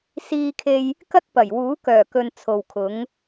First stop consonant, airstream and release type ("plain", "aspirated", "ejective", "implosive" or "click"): aspirated